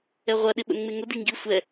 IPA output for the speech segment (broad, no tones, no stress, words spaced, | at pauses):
ɛʁʷɐ ɗɪɓə̰nŋ͡meŋʊ diŋɡi sʷɛ